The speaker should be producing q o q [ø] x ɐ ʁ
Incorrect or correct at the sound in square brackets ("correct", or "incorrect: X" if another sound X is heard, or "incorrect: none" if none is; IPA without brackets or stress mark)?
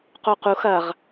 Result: incorrect: u